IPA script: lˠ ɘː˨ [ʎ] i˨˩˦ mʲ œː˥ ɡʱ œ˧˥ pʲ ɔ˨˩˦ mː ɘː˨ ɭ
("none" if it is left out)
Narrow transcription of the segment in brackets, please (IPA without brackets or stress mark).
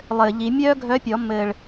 ʎ